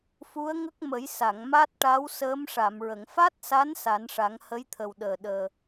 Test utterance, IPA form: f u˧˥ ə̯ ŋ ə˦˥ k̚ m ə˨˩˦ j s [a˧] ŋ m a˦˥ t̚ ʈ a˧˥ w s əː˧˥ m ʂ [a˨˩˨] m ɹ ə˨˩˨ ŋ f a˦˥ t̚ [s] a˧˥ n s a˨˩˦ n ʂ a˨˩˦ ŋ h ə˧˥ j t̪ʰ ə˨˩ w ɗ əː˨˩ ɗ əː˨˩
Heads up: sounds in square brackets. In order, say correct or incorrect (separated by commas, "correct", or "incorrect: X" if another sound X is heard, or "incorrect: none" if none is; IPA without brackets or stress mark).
incorrect: a˨˩˨, correct, correct